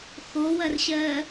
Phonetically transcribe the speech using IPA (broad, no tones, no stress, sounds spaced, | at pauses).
x o w ɐ r ɕ ɜ